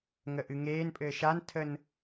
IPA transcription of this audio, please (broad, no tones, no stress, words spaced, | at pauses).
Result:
ŋəʔɨŋeːnpʼɘː ʃantʰən